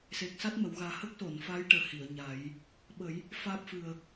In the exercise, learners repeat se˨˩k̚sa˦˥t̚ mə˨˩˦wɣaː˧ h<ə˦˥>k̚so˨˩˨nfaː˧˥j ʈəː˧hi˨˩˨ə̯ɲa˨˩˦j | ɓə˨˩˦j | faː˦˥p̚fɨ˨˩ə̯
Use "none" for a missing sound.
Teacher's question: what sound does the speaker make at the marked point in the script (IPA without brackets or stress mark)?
ə˦˥